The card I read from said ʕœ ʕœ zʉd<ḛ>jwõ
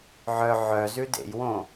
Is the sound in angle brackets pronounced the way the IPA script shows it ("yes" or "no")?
yes